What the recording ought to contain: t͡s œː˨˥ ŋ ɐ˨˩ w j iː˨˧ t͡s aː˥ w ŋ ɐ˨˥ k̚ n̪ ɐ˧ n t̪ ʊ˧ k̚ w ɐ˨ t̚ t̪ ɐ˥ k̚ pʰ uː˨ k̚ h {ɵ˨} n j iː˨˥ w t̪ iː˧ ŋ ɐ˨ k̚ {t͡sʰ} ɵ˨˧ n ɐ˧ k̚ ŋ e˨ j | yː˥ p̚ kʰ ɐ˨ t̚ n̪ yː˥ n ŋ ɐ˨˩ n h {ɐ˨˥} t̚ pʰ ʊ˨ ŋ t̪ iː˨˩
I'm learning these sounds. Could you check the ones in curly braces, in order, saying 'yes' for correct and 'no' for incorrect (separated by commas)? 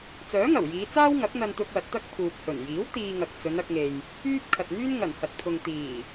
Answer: no, no, no